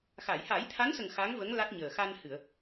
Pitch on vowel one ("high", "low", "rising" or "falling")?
low